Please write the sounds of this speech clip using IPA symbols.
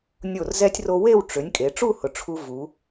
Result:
nʲ o˧˩ r z ɛ˧ tʲ r o˧ w e˥˧ w ʈ͡ʂ ʏ˩˧ nʲ kʼ e˩˧ ʈ͡ʂ u˥˧ h ʊ˩˧ ʈ͡ʂʰ u˧ v u˩˧

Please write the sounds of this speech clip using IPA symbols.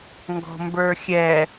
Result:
ŋ ɡ ɔ̤ m b ə˞ xʲ ɛ

